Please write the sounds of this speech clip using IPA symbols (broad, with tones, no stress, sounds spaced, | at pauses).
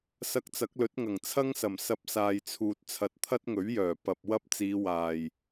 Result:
s ɐ˧ k̚ t͡s ɐ˨˥ k̚ l ɵ˨˥ t̚ ŋ ɐ˨˩ ŋ t͡sʰ ɐ˥ ŋ s ɐ˨˩ m s ɐ˧ p̚ s aː˨ j t͡sʰ uː˨ t̚ t͡sʰ ɐ˨ t̚ t̪ʰ ɐ˥ t̚ ŋ ɵ˨˥ ɥ j œː˨˩ p ɐ˨ p̚ w ɐ˥ p̚ t͡s iː˨˧ w aː˨˩ j